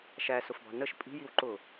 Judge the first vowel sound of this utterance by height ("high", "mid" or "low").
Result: low